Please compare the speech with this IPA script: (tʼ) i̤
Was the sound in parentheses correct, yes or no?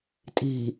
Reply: yes